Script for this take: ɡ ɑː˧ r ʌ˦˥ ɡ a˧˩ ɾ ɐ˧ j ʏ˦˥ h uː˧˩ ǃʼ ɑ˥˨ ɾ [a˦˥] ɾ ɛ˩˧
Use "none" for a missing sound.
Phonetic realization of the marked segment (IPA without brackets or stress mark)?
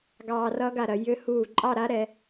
a˦˥